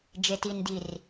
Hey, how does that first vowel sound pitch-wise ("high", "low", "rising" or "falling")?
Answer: low